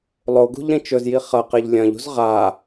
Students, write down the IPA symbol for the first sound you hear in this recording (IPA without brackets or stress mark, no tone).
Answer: lˠ